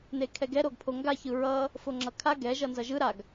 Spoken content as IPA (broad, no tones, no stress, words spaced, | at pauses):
nekʰɛɡɛ ɾoɡpʰoŋɡa çɯɹʌ | foŋ͡ǁʌkʰa ɡɛ ʒʌnzʌʒɯ ɾaɡ